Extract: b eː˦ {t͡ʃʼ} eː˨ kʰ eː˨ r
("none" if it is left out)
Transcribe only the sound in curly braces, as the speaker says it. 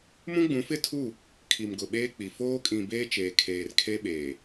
t͡ʃ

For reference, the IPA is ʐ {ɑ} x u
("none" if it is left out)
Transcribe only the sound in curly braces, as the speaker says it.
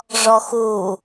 ɔ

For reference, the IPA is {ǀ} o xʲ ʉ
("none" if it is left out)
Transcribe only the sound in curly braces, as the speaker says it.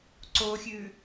ǀ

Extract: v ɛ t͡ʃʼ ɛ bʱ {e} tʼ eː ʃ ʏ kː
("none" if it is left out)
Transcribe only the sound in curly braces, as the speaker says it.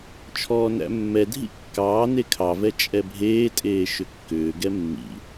eː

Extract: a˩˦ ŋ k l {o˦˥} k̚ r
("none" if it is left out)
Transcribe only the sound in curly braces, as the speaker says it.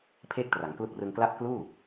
u˦˥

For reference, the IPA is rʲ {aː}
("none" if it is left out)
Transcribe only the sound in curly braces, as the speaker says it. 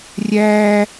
æː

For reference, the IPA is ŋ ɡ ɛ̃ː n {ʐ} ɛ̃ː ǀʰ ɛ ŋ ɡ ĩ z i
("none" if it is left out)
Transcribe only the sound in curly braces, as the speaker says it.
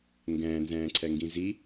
z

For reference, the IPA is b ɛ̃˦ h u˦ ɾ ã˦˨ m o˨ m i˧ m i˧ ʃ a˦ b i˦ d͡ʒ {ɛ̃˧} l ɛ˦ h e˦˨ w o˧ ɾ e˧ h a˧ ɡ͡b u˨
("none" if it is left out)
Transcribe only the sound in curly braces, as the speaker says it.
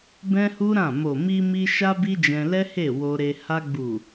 ɛ̃˧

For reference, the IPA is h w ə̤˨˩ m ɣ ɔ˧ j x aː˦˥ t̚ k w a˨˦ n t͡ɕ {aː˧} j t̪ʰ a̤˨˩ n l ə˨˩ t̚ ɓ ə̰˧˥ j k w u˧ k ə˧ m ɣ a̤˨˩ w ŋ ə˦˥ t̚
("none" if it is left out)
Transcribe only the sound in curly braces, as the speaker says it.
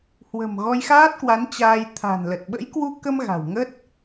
aː˧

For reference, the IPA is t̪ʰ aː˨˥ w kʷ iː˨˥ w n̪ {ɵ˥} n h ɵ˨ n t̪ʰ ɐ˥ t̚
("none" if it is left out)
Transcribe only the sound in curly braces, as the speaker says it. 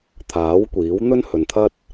ɵ˥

